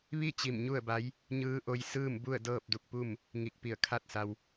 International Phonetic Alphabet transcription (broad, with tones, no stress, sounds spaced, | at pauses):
ʋ i˥˨ t͡ɕ i˧˩ m ɲ u˥˨ ə̯ b a˧˥ j | ɲ ɯː˧˥ ʔ o˧ j s ɯː˥˨ m b u˥˨ ə̯ d ɤː˥˨ p̚ d u˧ k̚ p u˥˨ m | ŋ i˧˩ k̚ p i˧˩ ə̯ kʰ a˥˨ t̚ s a˧ w